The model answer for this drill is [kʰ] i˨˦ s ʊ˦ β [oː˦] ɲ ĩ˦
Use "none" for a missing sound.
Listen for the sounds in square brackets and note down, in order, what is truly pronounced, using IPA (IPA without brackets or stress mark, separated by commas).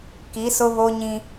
k, o˦